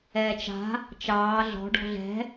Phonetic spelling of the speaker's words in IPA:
ɛː t͡ʃ a̤ | t͡ʃ ɑː ɮ ɔ̤ ɖ ɔ̤ ɮ ɛ̤

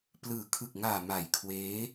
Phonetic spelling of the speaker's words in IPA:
p l ɯː˨˩ kʰ ɯ˨˩ k̚ ŋ aː˨˩ m a˨˩ j kʰ w eː˦˥

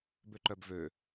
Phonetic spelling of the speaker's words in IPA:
b ø ǃ œ b v ø

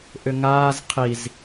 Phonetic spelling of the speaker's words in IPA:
ʔ ʏ ŋ aː z qʰ i z

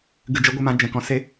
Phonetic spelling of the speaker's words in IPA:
ɡ ɨ˨ d͡ʒ ə˨˦ ɡʷ ɨ˨ m ã˧ d͡ʒ ɛ̃˨ k ɔ̃˧ s e˦

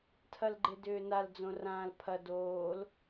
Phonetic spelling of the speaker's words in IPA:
tʰ ɐ l ɡ͡ǃ e d ʏː n a l d͡z õ r ãː l pʰ ɐ d oː l

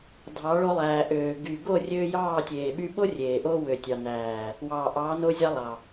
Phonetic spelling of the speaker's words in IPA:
dʱ ɑ˨˦ ɭ o˧ lˠ æː˨ ʔ øː˨ ɡ y˨ ɡ o˦˨ rʲ øː˧ j ɑː˦˨ tʲ eː˨ ɓ y˧ ɓ o˦ rʲ eː˨ ʔ o˦ w ø˨ tʲ ɑ˨ n æː˨ | w ɑː˨ ʔ ɑː˨˦ n o˧ zʲ ɑ˧ lˠ ɑ˨

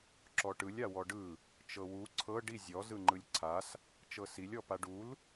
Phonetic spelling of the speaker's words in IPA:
ǁ ɔ ʈ ɯ lʲ a w ɔ ɖ ɯ | t͡ʃ ɤ w u ǀʰ ɤ ɖ i zʲ ɔ z ɯ ŋ͡ǃ ɯ lʲ ǀʰ a s | t͡ʃ ɤ s i lʲ ɔ p a ɖ u l

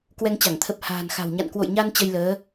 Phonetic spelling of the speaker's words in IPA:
k w ɛ˧ ŋ t͡ɕ a˧˩ ŋ t̪ʰ ə˨˩ p̚ h a̤ː˨˩ n x a̤˨˩ w ɲ a̰˧˨ n k w o̰˧˨ j ɲ a˧ n t͡ɕ ə˧ j l əː˨˦

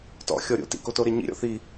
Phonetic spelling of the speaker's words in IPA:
t ɔ̰ xʲ ɔ ɾʲ o̰ t ḭ k o t o ɾ e ɲ ḭ ɾʲ ɔ̰ θ i

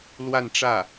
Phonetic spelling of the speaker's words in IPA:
l w a˥˧ n ʈ͡ʂ ä˥˩

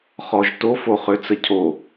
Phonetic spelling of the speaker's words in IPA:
χ ɔ ʒ t o f o χ ø t͡s ə cʰ o

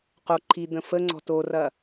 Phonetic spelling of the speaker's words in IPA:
q o ǃʰ i d̪ ə̃ f ə ŋ͡ǀ ɔ̤ t o r ɐ

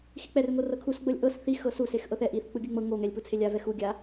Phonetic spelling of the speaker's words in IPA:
x i k͡p ɛ r ŋ o r ɤ kʰ u s ɡ͡b ɤ lʲ ʔ ɤ s θ i x ɤ s u s e x ʔ ɤ θ ɛ ʔ i θ k͡p ɯ ɡʲ ɯ ŋ͡m ɤ ŋ o ŋ ɛ lʲ p u t͡sʰ e lʲ a v ɛ x u ɡʲ a

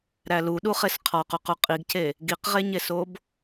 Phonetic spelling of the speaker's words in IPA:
ɾ æ l u ɗ u χ e s qʰ ɒ q u q u qʼ i ɡ c e | ɡ i q ʁ e ɲ e s o b

